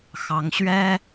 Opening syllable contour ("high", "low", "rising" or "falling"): rising